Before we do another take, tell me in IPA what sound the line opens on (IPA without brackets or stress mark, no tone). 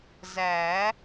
z